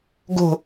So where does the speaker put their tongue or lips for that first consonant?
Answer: velum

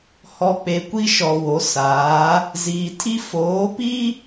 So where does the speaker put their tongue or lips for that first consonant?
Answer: throat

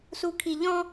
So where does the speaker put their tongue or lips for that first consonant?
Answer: tongue tip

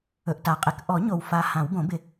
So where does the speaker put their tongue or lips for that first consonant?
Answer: throat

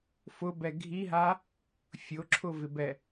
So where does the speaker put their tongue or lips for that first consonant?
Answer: lips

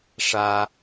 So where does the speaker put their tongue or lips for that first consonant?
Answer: retroflex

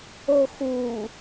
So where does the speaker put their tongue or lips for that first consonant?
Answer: velum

